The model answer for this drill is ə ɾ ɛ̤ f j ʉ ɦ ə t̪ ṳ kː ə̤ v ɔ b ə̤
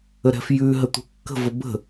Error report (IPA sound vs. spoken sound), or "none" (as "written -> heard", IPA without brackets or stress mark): ɔ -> ə